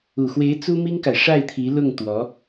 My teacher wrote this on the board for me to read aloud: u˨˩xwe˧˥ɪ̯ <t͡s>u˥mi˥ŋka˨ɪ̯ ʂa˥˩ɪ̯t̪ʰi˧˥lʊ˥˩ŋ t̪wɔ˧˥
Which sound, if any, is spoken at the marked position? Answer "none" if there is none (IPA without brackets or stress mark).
t͡s